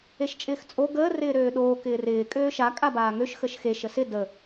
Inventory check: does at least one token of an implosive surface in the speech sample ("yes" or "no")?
yes